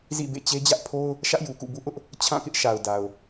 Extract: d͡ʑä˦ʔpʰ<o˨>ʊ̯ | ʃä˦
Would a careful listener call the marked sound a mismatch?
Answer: yes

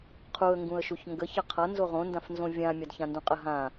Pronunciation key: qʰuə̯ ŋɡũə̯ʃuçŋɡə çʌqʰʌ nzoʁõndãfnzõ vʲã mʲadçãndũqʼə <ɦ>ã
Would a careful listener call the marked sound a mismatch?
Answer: no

